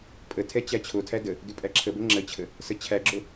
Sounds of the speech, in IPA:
pʼ ə tʰ ɛ t͡ɕ æ t͡ɕʰ o tʰ æ d ə | d ʉ pʼ æ ǁʰ ə b ə ŋ͡ǁ ə t͡ɕʰ ə | s ə t͡ɕʰ æ ɡ͡ǁ o

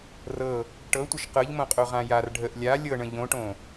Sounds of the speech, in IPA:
r ɤ | ʈ ɤ tʷ ə ʃ q ɤ ʎ m õ qʼ o ʁ ã j a r ɖʱ ə ʔ lʲ a lʲ ɤ ɳ ə̃ ʎ õ ʈ õ

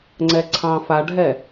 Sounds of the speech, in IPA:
ŋ͡ǀ ɛ ǀʰ ɑ̃ f a ɖʱ ɛ

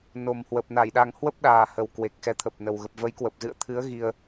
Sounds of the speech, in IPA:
n o˨˩ m h w ə˨˩ p̚ n a˧˩ j ɗ a˨˩ ŋ h w ə˦˥ p̚ ɗ aː˨˩ h ə˨˩ w k w e˨˩ k̚ x ɛ˨˦ t̪ʰ ə˨˩ p̚ n ə˨˩ w ɣ ə˨˩ p̚ v ə˨˦ j k w ə˨˩ p̚ z ɨ̰˧˨ ə̯ t̪ʰ ɨ˨˦ ə̯ ɣ i˧ ə̯

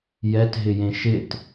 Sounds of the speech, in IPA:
j ɛ t ɦ ɪ j ẽ ʃ ɪ t

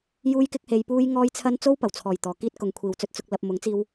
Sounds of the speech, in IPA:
j uː˥ j k ɪ˥ k̚ h e˧ j p uː˥ j ŋ ɔː˥ j t͡sʰ ɐ˥ n t͡s o˥ w p ɐ˨˩ w t͡sʰ ɔː˨˩ j t̪ ɔː˨˩ k iː˧ t̚ k ʊ˨ ŋ kʷʰ iː˨ w t͡s ɵ˧ t̚ t͡s ʊ˨ k̚ l ɐ˨ p̚ m ʊ˨˥ ŋ t͡s iː˧ w

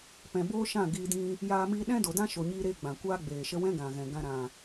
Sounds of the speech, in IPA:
p ɛ̃˧ b oː˦ ʃ ã˦˨ ɡ iː˧ d ĩ˧ | j aː˧ m iː˧ ɗ ɛ̃˦ d o˨ d ã˦ ʃ o˧ ɲ iː˦ ɾ eː˦ ɡ͡b ã˨ kʷ aː˦ ɡ͡b eː˨ ʃ ə˦ w ɛ̃˦ ɡ ã˨ ɣ ɛ̃˨ ɡ ã˧ ɾ ã˨

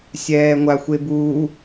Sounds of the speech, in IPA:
sʲ ɛː ŋʷ a xʷ e b u

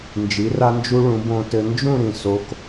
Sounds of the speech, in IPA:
n d͡ʒ i˩˧ r a˧ n d͡ʒ u˧ ɭ ũ˩˧ b õ˧ t ɘ˧ n d͡ʒ ũ˥˧ ɾ ĩ˧˩ s o˧ k

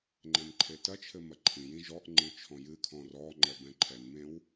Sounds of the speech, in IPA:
ŋ͡ǃ ɛ̃ n ǃʰ e t ɐ t͡ʃʰ ɘ m ɐ ǃʰ ĩ j ĩ ʒ ɔ ʔ ŋ͡ǃ ɨ t͡ʃʰ ɔ̃ j ɨ kʰ ɔ̃ r ɔ ŋ͡ǃ ɛ b ɛ̃ ǃʰ ɛ n m ẽ w

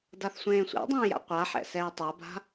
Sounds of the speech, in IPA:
d a θ sʷ ẽː sʷ ɛ̰ dˤ ẽː j a̰ qʷ a ħ ɛ̰ s ɛː tˤ a b a̤

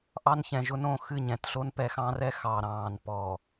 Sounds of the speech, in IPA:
ʔ ɑ˦ n ç ɛ̃˨ ʒ ʊ˦ n õ˨ x ɨ˦˨ ɲ ɛ̃˨ t ɬ o˦ n p ɛ˨ x ɑ̃˦ r ɛ˦ x ɑ˨ ɾ ɑ̃ː˨ n p ɔ˨

